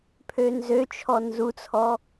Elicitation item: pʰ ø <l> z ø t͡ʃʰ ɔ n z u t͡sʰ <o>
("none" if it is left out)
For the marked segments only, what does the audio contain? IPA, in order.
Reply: n, ɔ

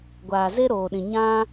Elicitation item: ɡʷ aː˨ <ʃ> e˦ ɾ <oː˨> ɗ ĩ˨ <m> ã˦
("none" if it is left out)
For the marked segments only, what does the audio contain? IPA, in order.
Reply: z, oː˨, ɲ

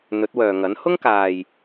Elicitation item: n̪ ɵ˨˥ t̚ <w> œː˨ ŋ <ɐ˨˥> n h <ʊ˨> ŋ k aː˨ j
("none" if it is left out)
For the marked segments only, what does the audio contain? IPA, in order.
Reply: w, ɐ˨˥, ʊ˥

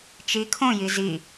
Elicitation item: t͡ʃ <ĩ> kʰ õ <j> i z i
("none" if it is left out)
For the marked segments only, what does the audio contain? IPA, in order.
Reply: i, j

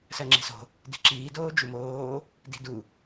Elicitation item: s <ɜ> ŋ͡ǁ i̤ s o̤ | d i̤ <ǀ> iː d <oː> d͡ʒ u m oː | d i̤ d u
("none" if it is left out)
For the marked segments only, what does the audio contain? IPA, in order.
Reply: ɜ, ǁ, oː

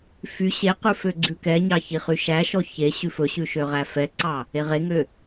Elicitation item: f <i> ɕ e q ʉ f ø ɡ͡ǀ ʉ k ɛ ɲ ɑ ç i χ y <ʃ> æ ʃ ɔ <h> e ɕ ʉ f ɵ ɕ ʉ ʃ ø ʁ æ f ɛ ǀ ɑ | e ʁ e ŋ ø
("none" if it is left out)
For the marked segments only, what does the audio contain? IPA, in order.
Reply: y, ʃ, ç

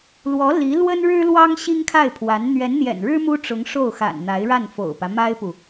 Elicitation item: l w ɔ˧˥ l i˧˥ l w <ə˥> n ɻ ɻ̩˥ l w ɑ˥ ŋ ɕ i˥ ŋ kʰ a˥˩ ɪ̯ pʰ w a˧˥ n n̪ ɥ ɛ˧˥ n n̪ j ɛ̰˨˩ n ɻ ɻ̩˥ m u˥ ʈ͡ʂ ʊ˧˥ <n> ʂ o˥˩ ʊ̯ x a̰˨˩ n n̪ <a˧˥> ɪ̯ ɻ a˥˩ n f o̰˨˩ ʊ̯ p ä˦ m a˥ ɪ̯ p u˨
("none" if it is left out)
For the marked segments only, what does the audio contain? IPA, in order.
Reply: ə˥, ŋ, a˧˥

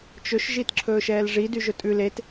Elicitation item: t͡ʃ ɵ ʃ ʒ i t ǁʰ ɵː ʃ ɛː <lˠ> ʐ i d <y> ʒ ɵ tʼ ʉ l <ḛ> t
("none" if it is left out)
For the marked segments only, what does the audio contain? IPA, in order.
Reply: l, y, e

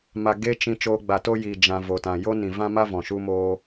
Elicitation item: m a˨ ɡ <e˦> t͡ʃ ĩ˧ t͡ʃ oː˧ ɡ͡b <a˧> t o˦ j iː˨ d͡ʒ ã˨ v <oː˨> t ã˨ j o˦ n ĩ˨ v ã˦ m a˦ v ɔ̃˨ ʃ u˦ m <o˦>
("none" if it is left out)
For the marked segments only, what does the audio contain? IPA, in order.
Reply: e˦, a˨, o˨, oː˦

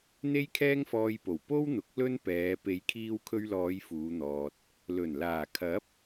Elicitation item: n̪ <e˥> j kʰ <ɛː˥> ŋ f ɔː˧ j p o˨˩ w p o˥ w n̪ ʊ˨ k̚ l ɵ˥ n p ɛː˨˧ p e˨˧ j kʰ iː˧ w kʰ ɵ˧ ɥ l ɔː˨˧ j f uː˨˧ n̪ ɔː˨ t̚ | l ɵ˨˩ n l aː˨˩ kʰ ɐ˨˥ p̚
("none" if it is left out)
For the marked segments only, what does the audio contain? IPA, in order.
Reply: e˥, ɛː˥

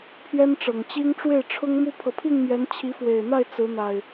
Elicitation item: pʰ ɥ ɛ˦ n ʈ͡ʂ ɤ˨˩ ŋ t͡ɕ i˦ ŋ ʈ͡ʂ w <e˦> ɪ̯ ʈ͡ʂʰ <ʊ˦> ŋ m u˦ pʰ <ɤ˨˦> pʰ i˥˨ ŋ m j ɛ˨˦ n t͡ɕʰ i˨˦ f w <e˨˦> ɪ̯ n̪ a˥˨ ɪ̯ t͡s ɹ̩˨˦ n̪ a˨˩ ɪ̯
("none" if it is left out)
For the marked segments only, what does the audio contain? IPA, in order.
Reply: e˥˨, ʊ˦, ɤ˨, e˨˩

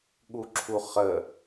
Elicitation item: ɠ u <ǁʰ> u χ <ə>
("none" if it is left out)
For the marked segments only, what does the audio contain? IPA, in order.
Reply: ǁʰ, ə

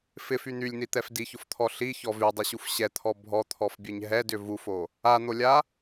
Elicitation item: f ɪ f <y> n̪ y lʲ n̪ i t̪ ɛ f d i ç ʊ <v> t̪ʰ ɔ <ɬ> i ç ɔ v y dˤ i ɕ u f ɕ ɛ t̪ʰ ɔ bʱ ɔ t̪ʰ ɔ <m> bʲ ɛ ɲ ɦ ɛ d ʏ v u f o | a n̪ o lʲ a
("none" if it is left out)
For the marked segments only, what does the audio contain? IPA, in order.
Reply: y, f, ɬ, f

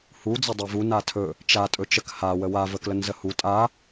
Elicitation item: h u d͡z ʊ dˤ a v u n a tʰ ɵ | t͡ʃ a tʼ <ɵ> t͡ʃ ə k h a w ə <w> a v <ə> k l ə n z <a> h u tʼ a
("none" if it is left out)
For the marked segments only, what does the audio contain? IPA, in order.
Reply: ɵ, w, ə, ə

